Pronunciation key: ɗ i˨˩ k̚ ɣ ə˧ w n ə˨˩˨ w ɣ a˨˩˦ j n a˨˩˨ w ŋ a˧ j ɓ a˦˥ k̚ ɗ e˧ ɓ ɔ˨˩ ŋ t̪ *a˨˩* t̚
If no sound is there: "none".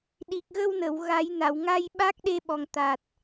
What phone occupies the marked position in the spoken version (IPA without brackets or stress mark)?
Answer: a˨˩